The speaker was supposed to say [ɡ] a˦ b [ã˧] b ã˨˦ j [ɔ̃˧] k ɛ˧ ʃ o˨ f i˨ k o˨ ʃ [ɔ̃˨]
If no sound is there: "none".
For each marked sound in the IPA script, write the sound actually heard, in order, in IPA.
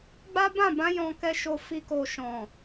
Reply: ɡ͡b, ã˦˨, ɔ̃˧, ɔ̃˨

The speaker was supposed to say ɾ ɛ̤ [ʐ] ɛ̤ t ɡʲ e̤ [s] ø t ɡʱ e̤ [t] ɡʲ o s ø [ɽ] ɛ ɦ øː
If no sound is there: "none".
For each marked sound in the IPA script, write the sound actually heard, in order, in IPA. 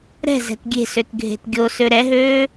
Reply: z, s, t, ɾ

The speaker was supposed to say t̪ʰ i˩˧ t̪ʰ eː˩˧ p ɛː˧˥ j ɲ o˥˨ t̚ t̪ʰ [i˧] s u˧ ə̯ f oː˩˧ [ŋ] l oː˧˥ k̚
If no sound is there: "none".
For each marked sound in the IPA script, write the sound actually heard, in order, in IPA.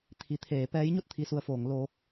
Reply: i˧, ŋ

